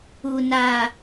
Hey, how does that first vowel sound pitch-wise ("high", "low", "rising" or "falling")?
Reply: low